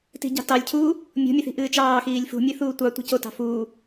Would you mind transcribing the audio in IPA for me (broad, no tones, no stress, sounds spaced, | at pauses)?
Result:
t i̤ ɟ ɑ̤ t ɑ lʲ cʰ uː | mʲ o̤ mʲ ɛ θ i̤ ʔ ɨː t͡ʃ ɑː x iː lʲ f ṳ mʲ ɨ θ uː tʷ ɑ tʷ i̤ c o t ɑ̤ f uː